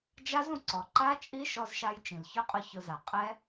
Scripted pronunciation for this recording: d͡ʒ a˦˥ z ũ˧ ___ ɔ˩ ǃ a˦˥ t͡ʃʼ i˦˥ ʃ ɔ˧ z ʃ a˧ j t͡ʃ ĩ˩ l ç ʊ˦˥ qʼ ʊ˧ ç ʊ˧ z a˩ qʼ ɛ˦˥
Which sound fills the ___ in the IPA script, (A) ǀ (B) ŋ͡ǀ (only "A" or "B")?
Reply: A